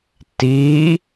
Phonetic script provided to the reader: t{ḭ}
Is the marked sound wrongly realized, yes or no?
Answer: yes